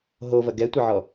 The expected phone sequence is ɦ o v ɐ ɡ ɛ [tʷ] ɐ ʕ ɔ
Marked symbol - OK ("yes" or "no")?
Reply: yes